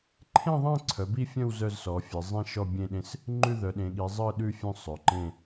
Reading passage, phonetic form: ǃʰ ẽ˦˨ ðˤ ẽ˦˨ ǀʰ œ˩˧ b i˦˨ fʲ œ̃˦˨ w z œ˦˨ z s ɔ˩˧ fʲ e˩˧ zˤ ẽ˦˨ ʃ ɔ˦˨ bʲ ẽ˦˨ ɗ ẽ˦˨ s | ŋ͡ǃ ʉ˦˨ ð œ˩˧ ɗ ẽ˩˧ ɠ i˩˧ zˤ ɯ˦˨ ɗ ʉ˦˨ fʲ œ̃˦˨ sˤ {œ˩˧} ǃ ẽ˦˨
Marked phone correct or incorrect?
correct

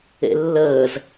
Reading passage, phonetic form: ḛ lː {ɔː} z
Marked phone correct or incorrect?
incorrect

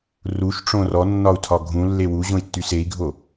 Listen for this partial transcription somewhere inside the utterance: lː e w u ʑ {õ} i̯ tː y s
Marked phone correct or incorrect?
correct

